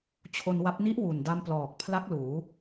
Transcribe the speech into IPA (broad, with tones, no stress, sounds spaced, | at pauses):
t͡ɕʰ o˧ n w a˦˥ p̚ n i˦˥ ʔ w u˨˩ n d a˧ m p l ɔː˨˩ k̚ pʰ l a˦˥ k̚ l uː˩˦